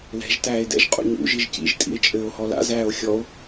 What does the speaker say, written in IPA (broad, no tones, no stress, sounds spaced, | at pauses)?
l ɛ̤ ʒ t æː e̯ d ɛ̰ ʒ qʼ ṵ ɲ ṵ ʒ i ʒ c ḭ ʒ tʼ ḭ e̯ t͡ʃʼ ɘː o̯ h ɔ l a̰ z æː o̯ xʲ ɔ o̯